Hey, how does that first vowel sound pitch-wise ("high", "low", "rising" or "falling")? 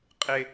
low